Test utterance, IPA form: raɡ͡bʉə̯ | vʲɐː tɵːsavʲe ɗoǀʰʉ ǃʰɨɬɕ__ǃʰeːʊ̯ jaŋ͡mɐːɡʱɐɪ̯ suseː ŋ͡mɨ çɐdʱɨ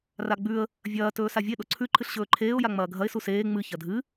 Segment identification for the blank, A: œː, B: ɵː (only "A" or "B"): B